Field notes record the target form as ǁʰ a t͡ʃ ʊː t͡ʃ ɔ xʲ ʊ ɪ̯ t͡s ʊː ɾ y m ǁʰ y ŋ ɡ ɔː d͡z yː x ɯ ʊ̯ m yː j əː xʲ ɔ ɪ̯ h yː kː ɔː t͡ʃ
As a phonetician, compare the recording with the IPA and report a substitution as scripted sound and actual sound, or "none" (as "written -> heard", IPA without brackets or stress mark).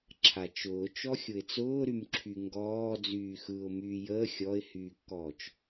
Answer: none